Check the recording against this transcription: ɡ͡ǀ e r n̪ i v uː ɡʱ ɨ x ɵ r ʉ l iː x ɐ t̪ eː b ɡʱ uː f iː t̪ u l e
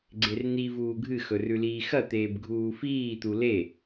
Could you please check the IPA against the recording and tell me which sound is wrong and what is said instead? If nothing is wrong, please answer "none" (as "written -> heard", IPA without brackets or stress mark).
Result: none